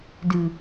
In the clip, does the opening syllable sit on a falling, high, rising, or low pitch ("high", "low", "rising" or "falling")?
low